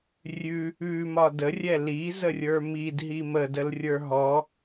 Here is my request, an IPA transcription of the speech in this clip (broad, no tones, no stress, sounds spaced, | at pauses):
rʲ ʉ | ʉ m ɒ d ə rʲ ɛ l i z ə rʲ ə˞ m i d ɦ i m ə d ə l rʲ ə˞ ɦ ɔ